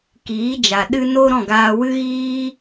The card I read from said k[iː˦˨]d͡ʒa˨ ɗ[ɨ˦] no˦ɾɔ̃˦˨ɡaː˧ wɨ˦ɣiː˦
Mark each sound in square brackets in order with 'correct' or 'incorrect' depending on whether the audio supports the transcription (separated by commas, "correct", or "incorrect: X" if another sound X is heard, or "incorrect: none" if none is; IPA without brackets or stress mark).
incorrect: iː˨˦, correct